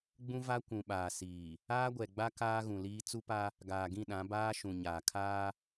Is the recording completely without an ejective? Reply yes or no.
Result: yes